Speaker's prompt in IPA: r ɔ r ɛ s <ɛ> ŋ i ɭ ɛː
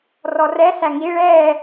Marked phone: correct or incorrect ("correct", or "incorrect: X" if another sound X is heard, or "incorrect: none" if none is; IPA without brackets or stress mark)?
incorrect: æ